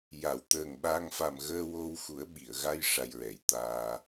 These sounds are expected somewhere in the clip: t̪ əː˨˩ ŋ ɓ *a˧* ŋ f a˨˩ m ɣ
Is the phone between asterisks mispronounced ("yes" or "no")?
yes